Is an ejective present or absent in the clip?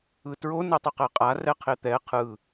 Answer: present